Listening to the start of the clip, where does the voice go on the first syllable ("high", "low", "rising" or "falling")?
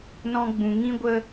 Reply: high